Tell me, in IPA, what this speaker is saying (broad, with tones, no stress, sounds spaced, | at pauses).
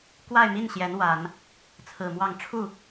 k w a˥˧ ɪ̯ m i˥˩ n ɕ j ɛ˧˥ n w a˨˩˦ n | t͡sʰ ɹ̩˨˩ m w ɑ˥˧ ŋ ʈ͡ʂʰ u˥˩